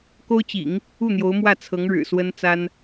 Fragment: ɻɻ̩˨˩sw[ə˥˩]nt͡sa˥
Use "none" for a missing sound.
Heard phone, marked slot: ə˥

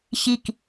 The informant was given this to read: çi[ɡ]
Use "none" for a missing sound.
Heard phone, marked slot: k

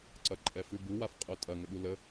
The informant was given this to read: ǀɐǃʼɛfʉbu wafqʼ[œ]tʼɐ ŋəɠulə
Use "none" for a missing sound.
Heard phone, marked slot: œ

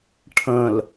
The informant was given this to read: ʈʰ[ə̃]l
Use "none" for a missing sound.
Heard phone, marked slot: ə̃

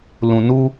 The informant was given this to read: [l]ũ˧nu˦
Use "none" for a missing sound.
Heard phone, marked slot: l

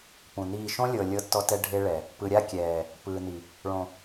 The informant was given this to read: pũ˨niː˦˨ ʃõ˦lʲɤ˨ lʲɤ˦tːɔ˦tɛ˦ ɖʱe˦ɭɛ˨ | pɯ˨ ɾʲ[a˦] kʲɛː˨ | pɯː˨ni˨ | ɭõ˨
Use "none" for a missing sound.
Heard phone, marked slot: a˦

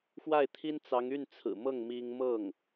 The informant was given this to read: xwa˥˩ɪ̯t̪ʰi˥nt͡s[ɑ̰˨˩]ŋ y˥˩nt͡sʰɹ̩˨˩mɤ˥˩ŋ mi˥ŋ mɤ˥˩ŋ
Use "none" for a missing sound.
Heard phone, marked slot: ɑ˧˥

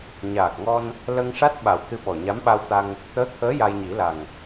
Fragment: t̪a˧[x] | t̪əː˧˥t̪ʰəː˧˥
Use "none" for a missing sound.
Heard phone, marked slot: ŋ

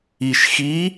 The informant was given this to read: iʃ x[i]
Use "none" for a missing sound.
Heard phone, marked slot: i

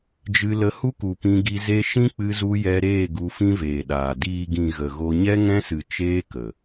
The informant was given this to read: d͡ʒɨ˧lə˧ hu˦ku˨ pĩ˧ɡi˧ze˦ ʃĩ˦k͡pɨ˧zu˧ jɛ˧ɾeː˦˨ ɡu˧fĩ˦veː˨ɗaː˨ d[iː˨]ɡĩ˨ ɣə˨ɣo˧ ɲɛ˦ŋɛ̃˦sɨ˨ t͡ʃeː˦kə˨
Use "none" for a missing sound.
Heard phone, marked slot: iː˨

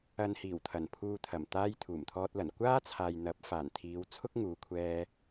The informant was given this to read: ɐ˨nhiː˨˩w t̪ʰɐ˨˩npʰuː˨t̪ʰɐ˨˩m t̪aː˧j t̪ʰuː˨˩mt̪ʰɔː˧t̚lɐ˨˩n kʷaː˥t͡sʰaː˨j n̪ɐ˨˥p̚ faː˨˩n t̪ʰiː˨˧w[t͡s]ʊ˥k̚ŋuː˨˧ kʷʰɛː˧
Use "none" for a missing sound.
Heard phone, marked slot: t͡sʰ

